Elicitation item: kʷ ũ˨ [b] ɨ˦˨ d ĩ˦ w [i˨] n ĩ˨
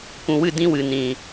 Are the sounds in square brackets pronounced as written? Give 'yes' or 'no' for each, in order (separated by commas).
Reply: no, no